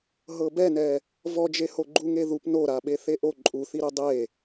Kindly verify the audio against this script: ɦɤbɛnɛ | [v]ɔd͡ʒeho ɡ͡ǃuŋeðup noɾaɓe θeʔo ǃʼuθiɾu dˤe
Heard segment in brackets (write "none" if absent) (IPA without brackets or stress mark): v